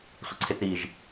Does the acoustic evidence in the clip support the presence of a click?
yes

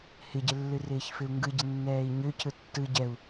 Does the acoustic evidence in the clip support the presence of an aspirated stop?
yes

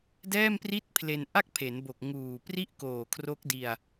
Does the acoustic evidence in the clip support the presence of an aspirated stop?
yes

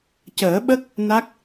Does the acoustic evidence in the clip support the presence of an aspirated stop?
no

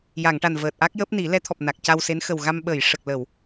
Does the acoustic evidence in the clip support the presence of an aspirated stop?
yes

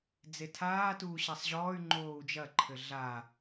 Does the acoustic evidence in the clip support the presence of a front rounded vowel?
yes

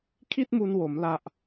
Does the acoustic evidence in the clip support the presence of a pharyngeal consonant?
no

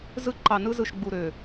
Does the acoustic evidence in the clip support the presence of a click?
yes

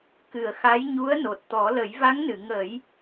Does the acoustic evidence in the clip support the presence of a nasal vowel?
no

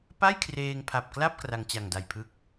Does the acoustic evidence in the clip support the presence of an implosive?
no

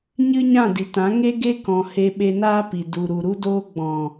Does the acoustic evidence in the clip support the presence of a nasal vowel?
yes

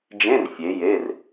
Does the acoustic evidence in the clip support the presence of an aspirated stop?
no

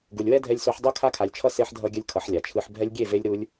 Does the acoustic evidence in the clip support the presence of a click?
no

